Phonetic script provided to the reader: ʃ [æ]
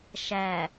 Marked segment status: correct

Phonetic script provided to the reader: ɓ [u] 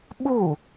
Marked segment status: correct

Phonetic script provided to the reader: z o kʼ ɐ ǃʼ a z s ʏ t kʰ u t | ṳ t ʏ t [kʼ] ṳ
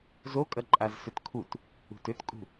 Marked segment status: correct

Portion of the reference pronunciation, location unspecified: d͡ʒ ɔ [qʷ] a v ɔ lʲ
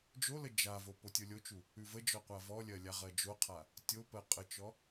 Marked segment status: correct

